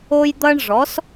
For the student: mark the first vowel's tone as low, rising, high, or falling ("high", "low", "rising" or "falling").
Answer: high